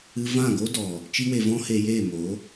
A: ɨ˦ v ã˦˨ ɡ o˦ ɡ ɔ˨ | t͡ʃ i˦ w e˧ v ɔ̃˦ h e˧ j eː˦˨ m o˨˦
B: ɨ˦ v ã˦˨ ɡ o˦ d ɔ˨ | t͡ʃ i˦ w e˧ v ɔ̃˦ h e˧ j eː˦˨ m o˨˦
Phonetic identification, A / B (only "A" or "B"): B